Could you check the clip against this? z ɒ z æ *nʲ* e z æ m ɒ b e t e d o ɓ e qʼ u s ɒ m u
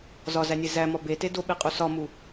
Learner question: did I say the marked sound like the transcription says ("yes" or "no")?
yes